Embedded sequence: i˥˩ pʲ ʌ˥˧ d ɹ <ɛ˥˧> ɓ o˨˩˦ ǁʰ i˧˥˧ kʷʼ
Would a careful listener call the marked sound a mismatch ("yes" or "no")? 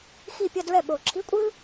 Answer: yes